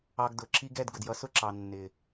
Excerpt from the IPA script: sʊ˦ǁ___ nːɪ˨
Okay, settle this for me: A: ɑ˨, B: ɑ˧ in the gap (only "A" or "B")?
A